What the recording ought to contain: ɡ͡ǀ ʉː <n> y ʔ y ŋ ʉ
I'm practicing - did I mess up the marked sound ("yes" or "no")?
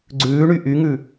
yes